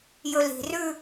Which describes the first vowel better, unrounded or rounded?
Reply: rounded